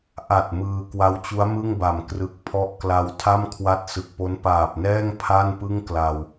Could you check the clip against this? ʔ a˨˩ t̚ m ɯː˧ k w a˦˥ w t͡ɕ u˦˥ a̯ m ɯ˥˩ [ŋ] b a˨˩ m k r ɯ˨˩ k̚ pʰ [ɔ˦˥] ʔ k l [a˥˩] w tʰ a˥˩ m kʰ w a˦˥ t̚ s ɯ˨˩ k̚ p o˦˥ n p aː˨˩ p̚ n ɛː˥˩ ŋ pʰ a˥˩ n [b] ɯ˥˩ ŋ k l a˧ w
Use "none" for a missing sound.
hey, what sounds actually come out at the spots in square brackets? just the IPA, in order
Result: ŋ, ɔ˦˥, a˧, p

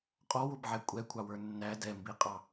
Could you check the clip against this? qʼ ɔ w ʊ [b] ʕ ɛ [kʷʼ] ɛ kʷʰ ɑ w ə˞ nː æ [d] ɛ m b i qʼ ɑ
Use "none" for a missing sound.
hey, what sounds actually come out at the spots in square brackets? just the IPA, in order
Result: b, kʷʼ, d

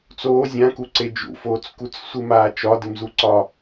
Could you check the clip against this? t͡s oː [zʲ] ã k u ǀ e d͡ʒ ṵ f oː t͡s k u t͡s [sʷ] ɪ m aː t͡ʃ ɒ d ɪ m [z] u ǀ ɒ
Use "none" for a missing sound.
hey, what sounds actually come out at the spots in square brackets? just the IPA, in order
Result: zʲ, sʷ, z

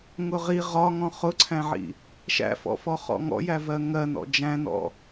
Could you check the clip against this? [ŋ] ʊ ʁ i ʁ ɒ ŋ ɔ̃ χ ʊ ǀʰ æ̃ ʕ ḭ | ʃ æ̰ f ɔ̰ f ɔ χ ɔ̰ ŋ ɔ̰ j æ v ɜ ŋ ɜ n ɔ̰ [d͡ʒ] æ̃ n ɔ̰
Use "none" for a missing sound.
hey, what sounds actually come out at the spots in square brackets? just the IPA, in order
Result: ŋ, d͡ʒ

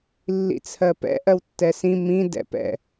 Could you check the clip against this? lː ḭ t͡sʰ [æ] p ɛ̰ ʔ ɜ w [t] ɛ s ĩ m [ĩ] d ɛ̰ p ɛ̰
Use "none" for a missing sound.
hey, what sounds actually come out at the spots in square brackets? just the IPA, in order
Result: ɜ, tː, ĩ

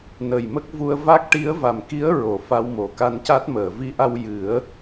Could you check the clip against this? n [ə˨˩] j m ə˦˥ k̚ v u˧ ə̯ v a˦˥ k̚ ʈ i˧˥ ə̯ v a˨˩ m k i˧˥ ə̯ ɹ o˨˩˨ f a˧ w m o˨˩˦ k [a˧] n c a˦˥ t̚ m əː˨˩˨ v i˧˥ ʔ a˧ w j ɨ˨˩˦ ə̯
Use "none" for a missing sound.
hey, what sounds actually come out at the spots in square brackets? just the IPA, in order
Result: ə˨˩, a˧

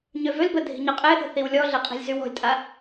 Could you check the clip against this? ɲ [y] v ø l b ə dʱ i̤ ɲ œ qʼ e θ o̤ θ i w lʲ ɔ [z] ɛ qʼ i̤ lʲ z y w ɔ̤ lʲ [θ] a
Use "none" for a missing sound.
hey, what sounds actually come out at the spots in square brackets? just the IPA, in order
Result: ø, ɮ, tʼ

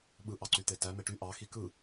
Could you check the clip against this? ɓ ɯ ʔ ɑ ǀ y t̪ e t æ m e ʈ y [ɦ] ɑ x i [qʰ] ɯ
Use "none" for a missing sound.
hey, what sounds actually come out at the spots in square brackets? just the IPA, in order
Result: ʔ, k

